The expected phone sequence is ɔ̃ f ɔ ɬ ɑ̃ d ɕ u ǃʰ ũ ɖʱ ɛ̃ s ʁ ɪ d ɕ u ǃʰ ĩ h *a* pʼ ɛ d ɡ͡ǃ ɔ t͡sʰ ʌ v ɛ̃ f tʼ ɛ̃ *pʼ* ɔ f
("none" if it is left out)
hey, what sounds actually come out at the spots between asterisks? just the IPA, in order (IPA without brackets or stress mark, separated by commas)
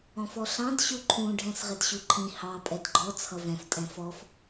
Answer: ɑ, f